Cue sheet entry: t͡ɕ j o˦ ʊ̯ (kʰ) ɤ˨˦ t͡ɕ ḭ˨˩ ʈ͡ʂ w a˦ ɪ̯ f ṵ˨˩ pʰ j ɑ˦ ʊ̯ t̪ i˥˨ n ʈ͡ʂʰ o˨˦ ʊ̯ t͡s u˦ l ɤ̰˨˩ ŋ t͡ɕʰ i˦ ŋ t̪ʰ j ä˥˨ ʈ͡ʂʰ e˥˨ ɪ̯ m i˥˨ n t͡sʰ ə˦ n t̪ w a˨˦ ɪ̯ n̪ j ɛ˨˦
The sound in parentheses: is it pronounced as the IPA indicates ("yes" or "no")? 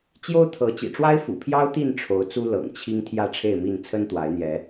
no